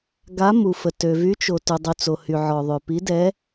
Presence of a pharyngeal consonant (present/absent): present